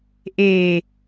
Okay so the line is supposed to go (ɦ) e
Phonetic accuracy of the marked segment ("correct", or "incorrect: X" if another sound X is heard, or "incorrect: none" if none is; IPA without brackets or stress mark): incorrect: ʔ